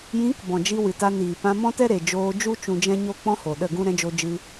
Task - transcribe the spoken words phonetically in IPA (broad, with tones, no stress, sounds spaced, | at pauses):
j ĩ˨˦ k b ɔ̃˨ d͡ʒ i˧ w ɨ˨ t a˧ n iː˨ p ã˧ m ɔ̃˦ t ɛ˦ ɾ e˨ d͡ʒ oː˧ d͡ʒ u˦ t͡ʃ ũ˧ d͡ʒ ɛ̃˦ ɲ o˦ k͡p ɔ̃˦ h o˨ ɗ ə˦˨ ɡ ũ˦ ɾ ɛ̃˧ d͡ʒ o˧ d͡ʒ ɨ˧